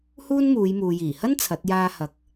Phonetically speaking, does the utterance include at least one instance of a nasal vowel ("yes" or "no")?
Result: no